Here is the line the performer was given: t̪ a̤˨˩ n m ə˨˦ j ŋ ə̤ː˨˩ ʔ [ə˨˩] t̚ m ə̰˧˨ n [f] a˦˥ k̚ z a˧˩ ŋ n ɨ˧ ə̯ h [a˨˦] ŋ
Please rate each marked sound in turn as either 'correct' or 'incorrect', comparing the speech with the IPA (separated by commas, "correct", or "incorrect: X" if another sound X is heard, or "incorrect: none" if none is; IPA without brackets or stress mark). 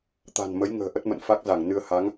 incorrect: ə˦˥, correct, correct